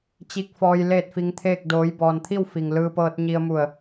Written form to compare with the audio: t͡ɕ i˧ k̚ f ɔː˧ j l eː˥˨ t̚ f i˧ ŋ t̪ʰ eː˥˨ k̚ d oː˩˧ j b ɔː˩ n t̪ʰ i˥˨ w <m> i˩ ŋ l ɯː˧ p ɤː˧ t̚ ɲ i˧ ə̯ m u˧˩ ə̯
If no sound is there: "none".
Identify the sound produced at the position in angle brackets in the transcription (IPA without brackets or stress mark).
f